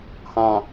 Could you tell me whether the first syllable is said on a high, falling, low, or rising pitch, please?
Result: low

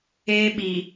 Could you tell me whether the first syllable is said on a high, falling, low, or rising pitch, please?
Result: high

